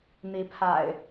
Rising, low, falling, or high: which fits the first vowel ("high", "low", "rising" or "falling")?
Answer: rising